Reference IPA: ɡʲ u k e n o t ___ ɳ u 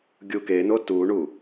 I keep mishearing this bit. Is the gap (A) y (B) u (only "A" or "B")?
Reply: B